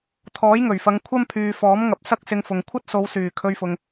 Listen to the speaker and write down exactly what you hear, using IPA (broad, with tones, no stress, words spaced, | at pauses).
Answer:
t̪ʰɔː˨˥jŋɵ˨˩ɥfɐ˨˧ŋ kʷʰɐ˥mpʰyː˨ fɔː˨˥mŋɐ˨p̚ sɐ˥k̚sɪ˧ŋfʊ˨ŋ kʷʰɐ˥t̚so˨˧wsyː˨˩ kʰɵ˧ɥfʊ˨ŋ